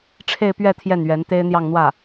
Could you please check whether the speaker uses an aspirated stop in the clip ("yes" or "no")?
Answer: yes